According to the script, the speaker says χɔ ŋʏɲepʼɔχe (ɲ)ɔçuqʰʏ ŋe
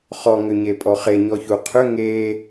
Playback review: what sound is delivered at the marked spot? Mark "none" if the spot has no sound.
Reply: ɲ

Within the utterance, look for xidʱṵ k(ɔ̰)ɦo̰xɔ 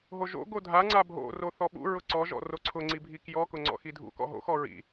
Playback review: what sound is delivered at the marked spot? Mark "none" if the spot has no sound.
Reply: ɔ̰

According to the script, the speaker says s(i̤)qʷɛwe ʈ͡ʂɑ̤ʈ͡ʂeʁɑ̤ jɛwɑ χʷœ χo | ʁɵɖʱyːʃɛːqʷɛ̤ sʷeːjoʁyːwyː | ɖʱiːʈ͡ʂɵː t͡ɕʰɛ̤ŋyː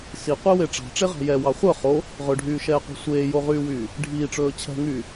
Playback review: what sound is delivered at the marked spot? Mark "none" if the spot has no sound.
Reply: i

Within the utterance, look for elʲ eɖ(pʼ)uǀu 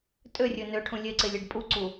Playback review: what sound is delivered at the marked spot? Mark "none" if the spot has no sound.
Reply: pʼ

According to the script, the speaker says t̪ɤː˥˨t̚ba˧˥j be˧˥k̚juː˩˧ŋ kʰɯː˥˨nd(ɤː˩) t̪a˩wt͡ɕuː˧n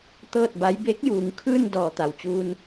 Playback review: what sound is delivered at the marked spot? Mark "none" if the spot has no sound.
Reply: ɔː˩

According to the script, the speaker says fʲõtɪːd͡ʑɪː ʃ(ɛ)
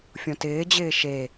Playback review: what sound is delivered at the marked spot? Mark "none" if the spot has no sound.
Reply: e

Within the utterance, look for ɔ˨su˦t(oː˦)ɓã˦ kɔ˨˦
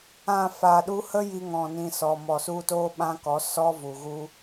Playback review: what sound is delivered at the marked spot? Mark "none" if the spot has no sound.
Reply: oː˦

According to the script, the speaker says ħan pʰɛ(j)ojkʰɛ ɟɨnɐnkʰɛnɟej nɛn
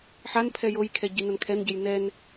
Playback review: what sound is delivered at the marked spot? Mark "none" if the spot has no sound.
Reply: j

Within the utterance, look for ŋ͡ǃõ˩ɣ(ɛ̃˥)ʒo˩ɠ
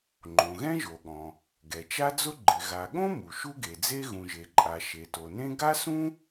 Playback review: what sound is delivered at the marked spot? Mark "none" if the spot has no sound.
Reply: ɛ̃˥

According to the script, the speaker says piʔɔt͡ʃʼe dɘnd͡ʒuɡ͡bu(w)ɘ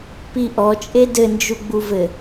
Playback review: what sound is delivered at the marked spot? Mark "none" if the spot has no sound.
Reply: v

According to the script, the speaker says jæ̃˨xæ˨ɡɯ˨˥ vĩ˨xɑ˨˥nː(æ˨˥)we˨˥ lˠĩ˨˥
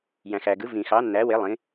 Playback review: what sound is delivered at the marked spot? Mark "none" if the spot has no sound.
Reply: æ˨˥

